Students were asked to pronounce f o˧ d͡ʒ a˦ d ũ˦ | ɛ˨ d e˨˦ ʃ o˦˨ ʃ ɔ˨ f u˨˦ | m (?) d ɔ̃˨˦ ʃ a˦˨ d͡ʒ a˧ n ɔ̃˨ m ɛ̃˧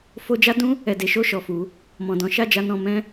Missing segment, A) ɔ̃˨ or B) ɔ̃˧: A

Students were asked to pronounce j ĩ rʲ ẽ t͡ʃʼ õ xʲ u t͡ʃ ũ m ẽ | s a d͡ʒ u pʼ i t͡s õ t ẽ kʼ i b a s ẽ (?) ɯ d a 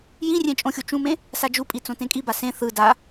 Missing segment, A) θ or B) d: A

